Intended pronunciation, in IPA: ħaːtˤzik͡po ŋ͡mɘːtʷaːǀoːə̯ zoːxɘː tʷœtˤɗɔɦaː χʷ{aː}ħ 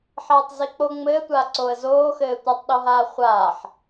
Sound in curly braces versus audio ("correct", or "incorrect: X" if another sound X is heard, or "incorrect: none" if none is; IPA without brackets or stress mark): correct